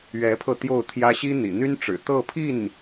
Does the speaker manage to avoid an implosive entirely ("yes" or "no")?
yes